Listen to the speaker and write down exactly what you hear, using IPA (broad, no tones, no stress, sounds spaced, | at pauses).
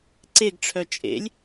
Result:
ǀ e ɡ ʈ͡ʂʰ œ t͡ʃʼ ḛ lʲ